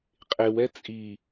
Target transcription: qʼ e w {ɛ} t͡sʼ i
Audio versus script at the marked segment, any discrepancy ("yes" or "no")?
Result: no